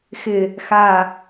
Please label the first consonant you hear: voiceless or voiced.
voiceless